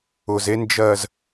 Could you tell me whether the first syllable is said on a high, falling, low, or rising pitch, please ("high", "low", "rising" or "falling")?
low